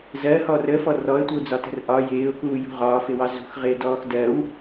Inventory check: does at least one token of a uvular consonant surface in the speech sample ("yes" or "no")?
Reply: yes